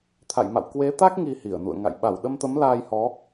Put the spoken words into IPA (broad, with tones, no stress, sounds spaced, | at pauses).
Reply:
t̪ʰ a̰˧˨ j m a̰˧˨ w k w e˨˦ t̪ a˦˥ k̚ ŋ i˧ h i˧˩ ə̯ n ṵ˧˨ ə̯ ŋ a̰˧˨ j ɓ a˧˩ w ɗ ə˧ m t̪ ə˨˦ m l aː˧ j h ɔ˨˦